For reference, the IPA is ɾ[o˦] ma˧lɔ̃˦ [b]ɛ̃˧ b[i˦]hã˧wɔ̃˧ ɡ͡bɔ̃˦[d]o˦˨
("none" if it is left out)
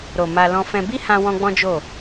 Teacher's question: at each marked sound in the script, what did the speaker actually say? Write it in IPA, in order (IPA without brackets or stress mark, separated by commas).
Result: o˨, f, i˦, d͡ʒ